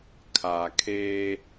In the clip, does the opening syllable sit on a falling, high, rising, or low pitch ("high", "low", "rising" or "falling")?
low